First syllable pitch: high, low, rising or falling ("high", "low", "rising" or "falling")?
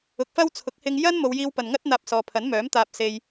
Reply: rising